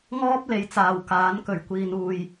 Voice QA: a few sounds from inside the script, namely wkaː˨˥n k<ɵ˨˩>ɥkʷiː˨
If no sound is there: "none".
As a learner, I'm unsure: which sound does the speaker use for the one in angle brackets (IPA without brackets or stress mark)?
ɵ˨˩